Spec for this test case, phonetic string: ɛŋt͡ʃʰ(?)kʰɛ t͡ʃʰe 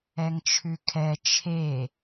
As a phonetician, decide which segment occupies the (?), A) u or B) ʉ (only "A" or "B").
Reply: B